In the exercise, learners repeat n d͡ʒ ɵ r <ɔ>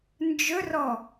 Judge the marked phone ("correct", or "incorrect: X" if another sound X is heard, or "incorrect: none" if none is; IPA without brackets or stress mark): correct